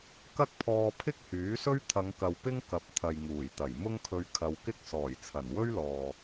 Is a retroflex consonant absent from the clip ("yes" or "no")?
yes